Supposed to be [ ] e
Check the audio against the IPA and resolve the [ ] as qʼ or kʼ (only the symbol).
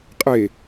qʼ